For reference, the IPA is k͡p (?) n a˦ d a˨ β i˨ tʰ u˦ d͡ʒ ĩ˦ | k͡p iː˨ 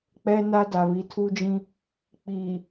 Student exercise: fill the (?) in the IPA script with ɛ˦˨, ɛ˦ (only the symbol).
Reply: ɛ˦